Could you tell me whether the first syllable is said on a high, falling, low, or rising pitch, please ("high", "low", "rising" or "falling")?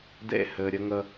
falling